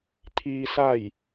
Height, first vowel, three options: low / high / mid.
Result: high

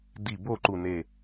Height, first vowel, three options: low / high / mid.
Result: high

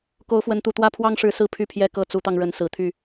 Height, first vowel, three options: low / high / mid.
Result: mid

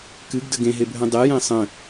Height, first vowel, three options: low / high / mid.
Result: high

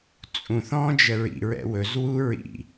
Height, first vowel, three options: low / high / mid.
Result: high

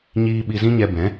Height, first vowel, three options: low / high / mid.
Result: high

